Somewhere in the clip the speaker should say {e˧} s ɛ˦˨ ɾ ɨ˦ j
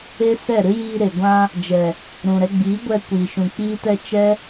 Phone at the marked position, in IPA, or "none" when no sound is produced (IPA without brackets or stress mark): e˦